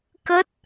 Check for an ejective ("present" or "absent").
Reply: absent